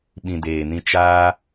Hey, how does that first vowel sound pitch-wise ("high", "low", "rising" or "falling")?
low